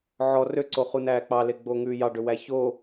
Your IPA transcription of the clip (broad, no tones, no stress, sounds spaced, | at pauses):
ʕ ɔ r ø ǀ o χ u n æː k͡p ɑ l e ɡ͡b oː ŋ ʉː j ɑ ɖ ø w æ ç o